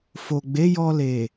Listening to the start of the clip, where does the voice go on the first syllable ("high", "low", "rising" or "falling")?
low